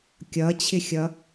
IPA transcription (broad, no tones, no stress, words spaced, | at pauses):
kʲʌt͡ɕʰɪxʲʌ